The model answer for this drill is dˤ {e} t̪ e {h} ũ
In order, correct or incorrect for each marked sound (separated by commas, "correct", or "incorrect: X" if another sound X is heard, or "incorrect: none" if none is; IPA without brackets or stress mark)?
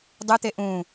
incorrect: ɨ, incorrect: ʔ